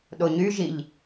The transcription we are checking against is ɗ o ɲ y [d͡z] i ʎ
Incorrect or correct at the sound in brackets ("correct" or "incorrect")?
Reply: incorrect